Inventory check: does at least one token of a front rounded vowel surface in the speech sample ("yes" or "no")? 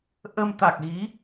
no